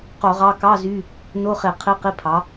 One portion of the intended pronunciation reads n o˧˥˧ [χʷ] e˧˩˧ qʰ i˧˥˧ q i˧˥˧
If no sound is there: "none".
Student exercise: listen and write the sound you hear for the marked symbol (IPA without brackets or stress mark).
χ